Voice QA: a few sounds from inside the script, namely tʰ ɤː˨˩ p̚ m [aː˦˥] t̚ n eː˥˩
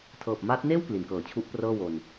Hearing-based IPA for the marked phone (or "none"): aː˦˥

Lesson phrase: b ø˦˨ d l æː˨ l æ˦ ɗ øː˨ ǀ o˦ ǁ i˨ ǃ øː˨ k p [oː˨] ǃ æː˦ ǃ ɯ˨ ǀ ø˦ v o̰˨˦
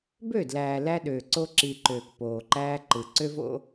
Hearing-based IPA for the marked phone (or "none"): oː˨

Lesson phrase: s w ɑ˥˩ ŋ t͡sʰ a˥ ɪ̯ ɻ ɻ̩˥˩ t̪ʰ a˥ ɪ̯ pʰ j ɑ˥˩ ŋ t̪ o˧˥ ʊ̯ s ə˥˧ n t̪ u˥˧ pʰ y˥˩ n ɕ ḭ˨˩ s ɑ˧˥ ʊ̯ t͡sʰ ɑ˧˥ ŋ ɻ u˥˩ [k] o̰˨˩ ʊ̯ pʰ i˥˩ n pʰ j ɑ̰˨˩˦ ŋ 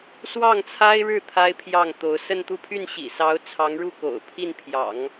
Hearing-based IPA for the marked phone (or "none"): k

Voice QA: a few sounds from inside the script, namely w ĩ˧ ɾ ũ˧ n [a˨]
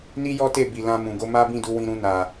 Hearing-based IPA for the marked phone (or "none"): a˨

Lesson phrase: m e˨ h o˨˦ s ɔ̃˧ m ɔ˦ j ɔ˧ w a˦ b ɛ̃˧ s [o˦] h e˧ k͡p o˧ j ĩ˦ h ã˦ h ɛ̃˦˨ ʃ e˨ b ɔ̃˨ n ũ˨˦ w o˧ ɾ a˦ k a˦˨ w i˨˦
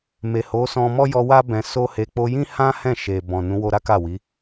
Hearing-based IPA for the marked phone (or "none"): o˦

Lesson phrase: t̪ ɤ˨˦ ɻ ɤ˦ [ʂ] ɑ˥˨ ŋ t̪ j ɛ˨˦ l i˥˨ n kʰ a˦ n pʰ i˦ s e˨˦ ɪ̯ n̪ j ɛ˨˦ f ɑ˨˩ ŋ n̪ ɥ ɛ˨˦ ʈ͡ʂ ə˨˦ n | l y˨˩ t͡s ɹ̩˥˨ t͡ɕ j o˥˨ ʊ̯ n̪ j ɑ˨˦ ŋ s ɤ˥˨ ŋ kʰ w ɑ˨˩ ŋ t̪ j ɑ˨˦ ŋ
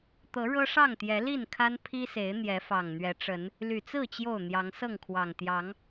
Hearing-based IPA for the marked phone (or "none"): ʂ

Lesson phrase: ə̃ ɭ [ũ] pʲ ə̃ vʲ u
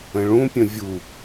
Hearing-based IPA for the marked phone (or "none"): ũ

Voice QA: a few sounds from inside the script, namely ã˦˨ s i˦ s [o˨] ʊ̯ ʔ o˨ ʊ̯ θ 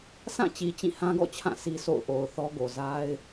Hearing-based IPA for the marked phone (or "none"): o̰˦˨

